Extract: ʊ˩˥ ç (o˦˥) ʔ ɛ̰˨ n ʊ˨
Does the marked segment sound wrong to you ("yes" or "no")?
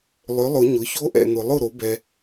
no